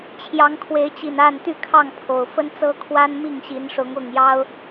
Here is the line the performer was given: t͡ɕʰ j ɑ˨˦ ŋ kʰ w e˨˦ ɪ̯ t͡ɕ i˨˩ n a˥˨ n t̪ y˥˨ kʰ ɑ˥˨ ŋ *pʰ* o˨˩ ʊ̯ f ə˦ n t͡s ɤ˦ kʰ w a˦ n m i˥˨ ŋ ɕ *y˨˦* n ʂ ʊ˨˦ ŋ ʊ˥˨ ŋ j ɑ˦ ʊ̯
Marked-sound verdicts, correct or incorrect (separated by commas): correct, incorrect